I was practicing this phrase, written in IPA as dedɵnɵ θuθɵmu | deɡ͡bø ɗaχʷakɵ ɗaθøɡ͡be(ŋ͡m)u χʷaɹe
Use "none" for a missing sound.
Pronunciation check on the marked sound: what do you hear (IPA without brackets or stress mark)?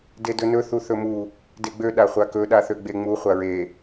ŋ͡m